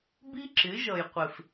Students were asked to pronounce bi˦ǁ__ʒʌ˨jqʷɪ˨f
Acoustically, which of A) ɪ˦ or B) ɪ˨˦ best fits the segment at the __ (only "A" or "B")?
B